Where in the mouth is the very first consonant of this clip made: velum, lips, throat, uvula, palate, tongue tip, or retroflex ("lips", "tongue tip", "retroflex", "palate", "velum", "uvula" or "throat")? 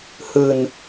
throat